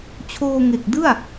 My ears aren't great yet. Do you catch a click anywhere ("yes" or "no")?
no